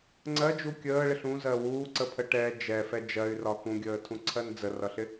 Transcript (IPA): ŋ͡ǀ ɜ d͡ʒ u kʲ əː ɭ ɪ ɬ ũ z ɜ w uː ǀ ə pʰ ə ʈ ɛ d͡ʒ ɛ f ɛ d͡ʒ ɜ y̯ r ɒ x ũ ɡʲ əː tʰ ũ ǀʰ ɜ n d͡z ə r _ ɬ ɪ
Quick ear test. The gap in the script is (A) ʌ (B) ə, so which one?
A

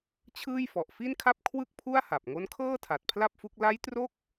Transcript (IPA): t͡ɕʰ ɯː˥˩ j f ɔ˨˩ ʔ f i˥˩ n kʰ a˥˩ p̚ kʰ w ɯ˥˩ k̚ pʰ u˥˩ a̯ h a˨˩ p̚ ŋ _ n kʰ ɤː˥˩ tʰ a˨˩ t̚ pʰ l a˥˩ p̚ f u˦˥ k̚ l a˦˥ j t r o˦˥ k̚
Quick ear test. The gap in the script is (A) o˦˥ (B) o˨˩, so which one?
A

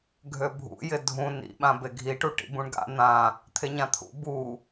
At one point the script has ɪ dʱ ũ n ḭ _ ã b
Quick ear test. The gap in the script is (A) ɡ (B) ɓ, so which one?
B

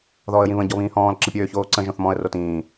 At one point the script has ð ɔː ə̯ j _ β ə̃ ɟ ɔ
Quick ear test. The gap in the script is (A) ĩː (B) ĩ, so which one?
B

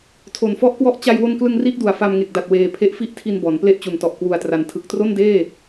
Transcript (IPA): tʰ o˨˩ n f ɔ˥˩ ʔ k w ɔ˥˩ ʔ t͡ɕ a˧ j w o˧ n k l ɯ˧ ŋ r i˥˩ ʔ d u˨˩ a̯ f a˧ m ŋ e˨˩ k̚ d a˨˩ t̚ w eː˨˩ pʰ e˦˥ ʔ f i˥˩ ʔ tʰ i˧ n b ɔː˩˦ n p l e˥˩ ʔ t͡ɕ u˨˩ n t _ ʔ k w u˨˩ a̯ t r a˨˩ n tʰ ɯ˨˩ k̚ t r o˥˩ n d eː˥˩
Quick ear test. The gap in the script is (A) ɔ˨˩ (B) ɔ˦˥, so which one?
A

